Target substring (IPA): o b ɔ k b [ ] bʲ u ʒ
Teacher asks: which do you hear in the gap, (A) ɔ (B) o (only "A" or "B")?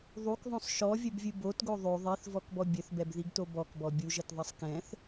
A